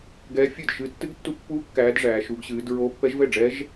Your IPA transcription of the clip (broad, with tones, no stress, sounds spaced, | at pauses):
ɡ ɛː˦˥ fʲ ɨ˥˨ d ʃ ɨ˦˥ tː ɨ˦˥ ɡ tː u˦˥ pː uː˦˥ kː æː˦˥ d ʐ æː˦˥ ʃ u˦˥ ɡ ɕ ɨː˦˥ d ɹ oː˦˥ pː ɛ˦˥ ʒ v ɛ˥˨ ɖ͡ʐ ɛ˦˥ ʒ